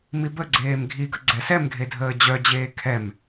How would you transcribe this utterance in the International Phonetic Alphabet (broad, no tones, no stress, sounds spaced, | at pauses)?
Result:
m i b ə ɡ͡ǀ eː m ɡʱ i ɡ ə ɡ͡ǀ ɛ s ɛ m ɡʱ e dʱ əː d͡ʑ œ d͡ʑ eː kʰ ɛ m